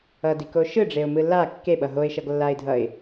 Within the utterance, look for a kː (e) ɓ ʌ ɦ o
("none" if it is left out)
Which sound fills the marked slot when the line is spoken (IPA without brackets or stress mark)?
e